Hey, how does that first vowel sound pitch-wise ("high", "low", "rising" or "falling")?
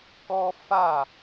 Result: high